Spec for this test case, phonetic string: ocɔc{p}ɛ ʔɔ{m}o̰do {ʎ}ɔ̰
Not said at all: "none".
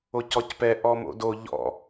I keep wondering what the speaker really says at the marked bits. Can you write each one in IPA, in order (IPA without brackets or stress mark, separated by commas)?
p, m, ʎ